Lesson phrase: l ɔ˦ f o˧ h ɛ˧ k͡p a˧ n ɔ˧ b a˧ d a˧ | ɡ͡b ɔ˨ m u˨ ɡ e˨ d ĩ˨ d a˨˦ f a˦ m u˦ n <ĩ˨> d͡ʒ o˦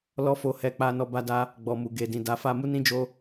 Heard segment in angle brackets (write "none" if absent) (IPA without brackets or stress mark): ĩ˦